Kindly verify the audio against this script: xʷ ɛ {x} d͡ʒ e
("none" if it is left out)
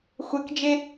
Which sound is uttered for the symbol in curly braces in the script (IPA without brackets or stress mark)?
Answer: k